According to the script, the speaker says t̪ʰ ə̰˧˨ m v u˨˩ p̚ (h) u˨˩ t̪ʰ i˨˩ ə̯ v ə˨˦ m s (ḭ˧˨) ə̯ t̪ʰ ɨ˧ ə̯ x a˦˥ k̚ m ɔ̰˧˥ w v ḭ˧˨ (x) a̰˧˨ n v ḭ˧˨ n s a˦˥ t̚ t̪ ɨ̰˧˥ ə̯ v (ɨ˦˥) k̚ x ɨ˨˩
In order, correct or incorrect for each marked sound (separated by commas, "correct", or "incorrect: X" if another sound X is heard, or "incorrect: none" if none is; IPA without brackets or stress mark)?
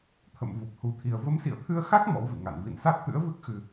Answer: correct, correct, incorrect: ŋ, correct